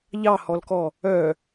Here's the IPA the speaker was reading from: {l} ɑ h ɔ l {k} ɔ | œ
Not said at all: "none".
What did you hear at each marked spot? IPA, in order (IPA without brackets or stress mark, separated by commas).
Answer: ʎ, k